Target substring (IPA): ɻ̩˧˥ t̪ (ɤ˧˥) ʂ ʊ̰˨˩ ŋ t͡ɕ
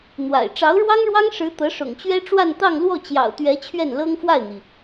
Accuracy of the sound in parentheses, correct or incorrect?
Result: correct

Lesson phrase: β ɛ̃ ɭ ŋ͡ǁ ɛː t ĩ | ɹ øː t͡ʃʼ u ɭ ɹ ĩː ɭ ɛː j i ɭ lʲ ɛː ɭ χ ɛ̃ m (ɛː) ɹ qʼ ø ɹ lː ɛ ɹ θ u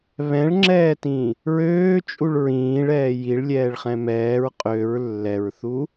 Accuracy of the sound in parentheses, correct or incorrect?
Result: correct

